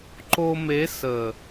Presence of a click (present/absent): present